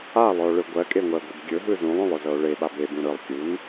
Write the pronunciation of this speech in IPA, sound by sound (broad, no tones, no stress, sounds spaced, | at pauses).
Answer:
a lˠ ɵ o̯ ɭ ɯ ɡʷ ɜ kʼ e ŋʷ ɜ ɡʷ ɯ b ɡʲ ɵ ɦ ɯ z ũ lˠ õ lˠ ɵ z ɤ o̯ ɭ e ɓ a b e b ũ ɾ ɯ lˠ kʲ u n